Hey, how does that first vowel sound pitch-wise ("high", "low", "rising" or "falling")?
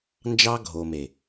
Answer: high